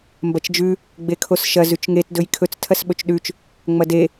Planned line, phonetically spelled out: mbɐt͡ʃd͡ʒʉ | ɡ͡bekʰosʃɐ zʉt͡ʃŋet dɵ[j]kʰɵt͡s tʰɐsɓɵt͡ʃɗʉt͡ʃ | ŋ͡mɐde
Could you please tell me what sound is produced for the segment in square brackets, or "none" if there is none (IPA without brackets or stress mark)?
j